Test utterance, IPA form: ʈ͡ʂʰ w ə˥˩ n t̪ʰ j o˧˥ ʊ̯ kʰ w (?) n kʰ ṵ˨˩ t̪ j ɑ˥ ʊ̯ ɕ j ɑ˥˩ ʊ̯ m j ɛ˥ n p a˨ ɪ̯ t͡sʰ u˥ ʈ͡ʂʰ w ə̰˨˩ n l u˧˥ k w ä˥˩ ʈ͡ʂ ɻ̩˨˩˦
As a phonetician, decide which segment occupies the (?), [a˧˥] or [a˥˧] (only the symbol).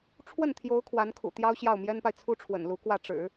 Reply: a˧˥